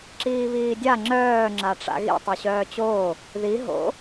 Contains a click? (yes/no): yes